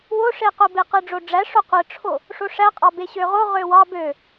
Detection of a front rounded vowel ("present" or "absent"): present